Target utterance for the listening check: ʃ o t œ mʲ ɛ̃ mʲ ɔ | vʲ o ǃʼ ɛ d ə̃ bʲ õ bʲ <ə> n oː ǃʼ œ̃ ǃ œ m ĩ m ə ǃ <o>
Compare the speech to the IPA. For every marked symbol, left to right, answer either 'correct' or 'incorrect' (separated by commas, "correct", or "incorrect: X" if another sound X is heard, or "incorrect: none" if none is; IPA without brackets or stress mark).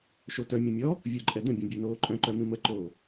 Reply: incorrect: ə˞, incorrect: oː